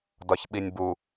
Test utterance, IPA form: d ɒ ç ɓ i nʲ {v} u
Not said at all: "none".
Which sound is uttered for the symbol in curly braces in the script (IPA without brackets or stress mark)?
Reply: b